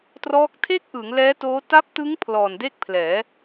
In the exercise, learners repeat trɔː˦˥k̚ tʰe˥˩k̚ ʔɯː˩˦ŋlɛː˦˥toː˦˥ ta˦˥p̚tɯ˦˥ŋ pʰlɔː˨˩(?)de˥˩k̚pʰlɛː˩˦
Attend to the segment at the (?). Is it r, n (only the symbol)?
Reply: n